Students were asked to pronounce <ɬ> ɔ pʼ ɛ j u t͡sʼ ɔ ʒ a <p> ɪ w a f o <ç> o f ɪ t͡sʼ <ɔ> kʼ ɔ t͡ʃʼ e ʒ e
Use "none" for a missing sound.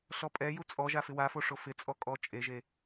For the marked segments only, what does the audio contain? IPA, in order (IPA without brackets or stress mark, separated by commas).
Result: ɬ, f, ʂ, ɔ